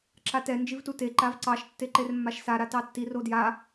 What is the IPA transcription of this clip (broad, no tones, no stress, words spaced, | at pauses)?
ǁatɛ nd͡ʒivtute ǃavǀɑʃ tːeǃermːaʃsa ɾatɑtːi rodja